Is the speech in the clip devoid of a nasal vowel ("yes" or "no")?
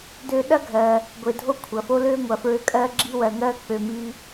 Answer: yes